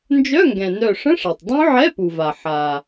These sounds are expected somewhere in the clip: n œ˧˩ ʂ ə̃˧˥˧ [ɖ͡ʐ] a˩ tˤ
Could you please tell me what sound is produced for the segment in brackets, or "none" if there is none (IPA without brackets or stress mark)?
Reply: ʂ